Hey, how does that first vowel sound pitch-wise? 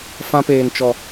high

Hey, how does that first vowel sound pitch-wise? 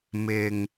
low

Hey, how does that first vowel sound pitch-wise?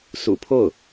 low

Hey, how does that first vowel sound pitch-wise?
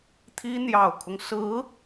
high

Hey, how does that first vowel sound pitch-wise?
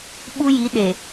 high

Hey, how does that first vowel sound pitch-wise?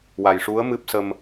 low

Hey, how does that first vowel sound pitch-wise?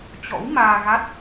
rising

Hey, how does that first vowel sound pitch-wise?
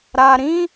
low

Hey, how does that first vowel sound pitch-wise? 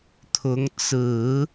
rising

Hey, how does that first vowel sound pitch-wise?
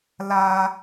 high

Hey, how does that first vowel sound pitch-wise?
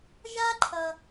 high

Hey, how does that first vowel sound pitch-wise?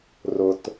low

